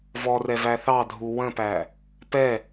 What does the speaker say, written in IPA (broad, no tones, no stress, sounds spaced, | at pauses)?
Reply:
v ɔ r ɛ v æ θ ɑ dʱ u w ə̃ p æ | p ɛ